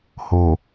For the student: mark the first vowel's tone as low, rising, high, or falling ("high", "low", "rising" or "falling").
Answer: low